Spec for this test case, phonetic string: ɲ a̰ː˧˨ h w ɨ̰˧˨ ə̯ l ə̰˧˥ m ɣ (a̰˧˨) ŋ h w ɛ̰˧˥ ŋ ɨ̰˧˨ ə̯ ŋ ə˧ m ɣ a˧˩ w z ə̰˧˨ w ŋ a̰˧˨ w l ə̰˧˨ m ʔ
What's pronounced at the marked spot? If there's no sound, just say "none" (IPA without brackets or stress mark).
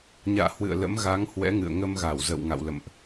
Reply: a˨˦